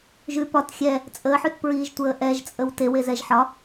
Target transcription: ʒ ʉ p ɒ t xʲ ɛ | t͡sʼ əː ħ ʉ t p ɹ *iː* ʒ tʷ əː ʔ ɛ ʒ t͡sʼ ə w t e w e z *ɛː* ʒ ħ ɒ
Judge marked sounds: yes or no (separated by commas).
yes, no